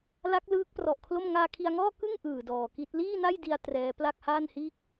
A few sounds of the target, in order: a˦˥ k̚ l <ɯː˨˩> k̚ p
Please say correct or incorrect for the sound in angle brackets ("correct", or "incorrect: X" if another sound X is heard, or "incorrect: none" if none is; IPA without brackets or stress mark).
incorrect: ɯː˦˥